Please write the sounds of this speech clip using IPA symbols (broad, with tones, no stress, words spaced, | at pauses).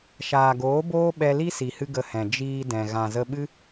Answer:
ʃaː˨ɡoː˨˦boː˦ɓɛ˧ li˦si˨hɨ˧ ɡə˧hɛ̃˨ d͡ʒiː˧dɛ̃˨ ɣã˨zə˧ɓɨ˦